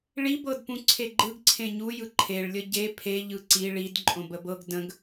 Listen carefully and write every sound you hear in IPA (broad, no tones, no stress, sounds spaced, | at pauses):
ɭ i b ɤ d p ũ ǀʰ e ɡ͡ǃ ɯ ɡ ǀʰ ẽ ɲ u j ɯ ǃʰ e ɭ lʲ ə ɟ e pʰ e ʎ ɯ ǀ i ɭ i d ǃʼ õ b ə b ɤ ɡ d ə̃ ɡ